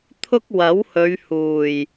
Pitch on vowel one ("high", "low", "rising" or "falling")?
high